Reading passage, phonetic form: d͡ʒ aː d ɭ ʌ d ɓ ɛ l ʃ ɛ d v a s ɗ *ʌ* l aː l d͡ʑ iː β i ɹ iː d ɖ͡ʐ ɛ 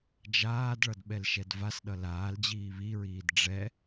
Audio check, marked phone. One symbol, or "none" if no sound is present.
ʌ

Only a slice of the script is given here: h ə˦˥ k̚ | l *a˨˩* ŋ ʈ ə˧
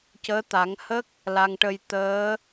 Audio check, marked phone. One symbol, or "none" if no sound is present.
a˧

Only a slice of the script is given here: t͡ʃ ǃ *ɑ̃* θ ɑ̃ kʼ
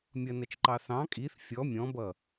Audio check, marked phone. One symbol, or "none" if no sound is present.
ɑ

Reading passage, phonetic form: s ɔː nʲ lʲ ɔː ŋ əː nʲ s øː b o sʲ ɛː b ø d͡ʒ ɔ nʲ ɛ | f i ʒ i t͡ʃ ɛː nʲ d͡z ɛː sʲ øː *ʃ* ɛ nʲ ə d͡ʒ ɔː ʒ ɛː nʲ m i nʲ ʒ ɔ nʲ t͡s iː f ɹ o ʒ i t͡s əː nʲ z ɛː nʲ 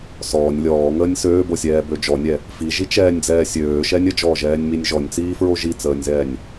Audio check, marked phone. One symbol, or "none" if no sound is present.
ʃ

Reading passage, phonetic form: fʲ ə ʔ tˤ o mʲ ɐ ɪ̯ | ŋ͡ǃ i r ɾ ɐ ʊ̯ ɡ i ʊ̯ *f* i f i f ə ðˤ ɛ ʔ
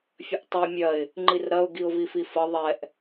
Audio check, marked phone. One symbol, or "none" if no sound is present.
v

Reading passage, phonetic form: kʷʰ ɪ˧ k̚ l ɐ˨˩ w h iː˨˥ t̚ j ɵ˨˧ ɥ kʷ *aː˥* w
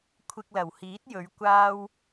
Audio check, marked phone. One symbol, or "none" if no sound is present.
aː˥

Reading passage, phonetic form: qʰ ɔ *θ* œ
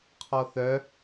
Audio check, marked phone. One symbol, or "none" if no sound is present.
θ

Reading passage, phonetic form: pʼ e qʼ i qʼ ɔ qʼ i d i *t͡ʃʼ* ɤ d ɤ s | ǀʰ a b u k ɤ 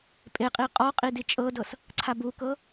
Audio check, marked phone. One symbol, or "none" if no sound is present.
t͡ʃʼ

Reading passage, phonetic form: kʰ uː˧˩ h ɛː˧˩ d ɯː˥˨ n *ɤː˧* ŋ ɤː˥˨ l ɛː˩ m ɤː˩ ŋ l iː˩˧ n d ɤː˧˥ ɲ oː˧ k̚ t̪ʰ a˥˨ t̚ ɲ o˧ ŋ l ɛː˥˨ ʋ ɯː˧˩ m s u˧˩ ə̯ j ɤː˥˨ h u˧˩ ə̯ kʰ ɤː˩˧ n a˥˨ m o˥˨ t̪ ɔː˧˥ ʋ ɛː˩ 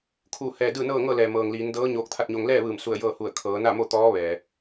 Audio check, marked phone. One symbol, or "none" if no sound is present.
ɤː˥˨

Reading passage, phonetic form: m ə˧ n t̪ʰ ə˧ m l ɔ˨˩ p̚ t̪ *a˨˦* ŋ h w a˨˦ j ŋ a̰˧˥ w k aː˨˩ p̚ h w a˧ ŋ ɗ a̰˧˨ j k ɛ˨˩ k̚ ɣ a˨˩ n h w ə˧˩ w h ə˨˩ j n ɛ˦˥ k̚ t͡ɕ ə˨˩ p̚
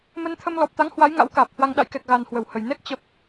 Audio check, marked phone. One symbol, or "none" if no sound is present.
a˨˦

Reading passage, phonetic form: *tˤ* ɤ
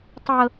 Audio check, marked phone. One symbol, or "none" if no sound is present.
tˤ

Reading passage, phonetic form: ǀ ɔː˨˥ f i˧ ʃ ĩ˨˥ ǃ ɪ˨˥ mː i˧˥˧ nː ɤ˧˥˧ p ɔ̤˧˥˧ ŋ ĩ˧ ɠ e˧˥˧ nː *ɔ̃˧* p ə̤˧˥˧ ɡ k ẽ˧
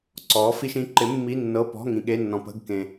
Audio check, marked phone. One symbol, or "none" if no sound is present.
ɔ̃˧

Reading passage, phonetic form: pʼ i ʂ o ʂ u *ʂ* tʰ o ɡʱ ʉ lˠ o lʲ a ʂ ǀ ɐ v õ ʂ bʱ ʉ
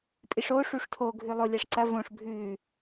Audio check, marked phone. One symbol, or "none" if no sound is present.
ʂ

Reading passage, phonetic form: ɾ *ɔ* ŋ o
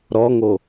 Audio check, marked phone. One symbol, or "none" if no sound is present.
ɔ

